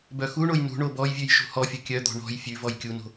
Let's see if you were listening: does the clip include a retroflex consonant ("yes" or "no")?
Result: yes